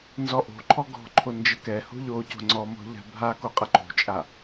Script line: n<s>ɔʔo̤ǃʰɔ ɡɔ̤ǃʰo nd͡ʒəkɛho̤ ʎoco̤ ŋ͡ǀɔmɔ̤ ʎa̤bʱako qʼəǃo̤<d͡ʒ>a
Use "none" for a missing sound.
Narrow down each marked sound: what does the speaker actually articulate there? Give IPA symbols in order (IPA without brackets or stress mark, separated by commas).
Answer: z, t͡ʃʼ